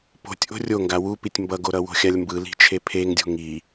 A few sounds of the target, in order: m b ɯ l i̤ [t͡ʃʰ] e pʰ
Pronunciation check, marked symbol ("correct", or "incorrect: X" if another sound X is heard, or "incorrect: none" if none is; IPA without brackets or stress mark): correct